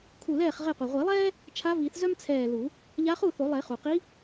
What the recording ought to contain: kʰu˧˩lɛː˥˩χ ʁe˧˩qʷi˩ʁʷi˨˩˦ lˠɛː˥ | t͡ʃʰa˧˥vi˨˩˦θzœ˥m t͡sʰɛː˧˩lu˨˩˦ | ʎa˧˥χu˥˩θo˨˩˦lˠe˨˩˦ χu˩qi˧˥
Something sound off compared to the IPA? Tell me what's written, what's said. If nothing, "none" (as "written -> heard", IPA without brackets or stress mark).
none